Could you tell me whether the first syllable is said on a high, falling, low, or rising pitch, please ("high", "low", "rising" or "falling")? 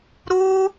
high